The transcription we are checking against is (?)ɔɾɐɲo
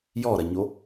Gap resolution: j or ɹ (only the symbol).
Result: j